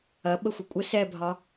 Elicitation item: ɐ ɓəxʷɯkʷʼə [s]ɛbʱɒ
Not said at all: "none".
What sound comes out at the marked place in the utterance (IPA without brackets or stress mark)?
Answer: s